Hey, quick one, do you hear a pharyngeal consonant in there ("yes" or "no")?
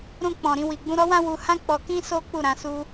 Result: no